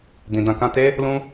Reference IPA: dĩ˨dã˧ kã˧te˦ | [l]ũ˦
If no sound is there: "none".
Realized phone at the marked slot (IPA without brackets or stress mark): l